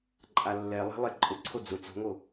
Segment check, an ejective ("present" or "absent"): present